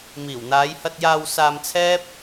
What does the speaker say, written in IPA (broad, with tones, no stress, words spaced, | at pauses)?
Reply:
miː˨˩wn̪aː˨˧jhɐ˧t̚ jaː˧wsaː˧mt͡sʰɛː˥p̚